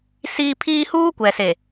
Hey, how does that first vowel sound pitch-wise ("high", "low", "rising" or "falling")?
high